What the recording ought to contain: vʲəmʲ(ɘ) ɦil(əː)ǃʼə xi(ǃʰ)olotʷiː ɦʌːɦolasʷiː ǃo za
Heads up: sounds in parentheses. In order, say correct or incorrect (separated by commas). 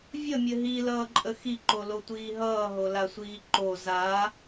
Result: correct, incorrect, incorrect